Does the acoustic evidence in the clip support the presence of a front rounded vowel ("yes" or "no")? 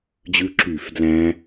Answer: yes